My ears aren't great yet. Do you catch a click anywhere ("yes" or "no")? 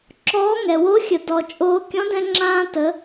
yes